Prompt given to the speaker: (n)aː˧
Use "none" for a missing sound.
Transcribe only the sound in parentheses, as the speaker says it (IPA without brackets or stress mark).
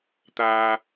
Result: t̪